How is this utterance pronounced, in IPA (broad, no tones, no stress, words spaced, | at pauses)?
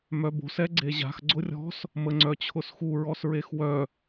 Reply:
mœbo̤s ɛɡ͡ǀeʑa̤x ɡ͡ǀʊrʲɔ̤s | məŋ͡ǀœt͡ɕʰʊsxu ɹɔsɹexwœ